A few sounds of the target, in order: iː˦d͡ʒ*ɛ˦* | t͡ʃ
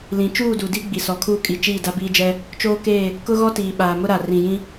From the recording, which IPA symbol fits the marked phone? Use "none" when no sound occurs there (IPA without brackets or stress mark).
ɛ˦